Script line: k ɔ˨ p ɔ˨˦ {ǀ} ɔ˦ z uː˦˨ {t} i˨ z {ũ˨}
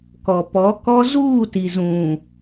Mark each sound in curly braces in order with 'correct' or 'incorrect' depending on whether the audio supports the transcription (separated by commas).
incorrect, correct, correct